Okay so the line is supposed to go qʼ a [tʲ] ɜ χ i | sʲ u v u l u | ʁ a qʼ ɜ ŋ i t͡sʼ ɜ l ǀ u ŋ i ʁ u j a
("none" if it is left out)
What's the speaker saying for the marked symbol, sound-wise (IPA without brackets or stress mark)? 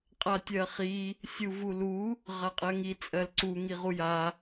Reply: tʲ